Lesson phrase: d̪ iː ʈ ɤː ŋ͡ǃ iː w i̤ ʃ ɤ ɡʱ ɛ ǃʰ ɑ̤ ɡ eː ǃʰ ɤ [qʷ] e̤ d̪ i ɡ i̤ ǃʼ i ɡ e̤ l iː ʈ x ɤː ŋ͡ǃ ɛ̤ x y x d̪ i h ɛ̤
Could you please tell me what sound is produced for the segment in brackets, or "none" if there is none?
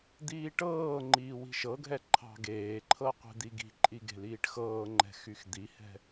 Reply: qʷ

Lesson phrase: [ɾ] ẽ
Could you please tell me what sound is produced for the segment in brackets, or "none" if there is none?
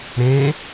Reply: ɾ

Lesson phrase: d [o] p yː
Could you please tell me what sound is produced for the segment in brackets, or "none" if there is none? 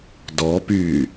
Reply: ɔ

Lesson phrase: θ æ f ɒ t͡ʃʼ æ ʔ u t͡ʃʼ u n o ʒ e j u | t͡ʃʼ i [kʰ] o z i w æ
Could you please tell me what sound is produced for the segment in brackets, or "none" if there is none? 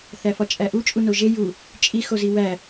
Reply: x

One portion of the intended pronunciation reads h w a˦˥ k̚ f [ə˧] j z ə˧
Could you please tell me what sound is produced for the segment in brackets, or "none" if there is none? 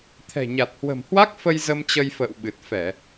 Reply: ə˧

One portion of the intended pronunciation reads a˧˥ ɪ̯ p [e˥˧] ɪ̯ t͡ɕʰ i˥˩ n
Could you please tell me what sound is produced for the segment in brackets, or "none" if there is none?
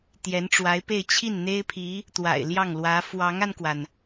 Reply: e˥˧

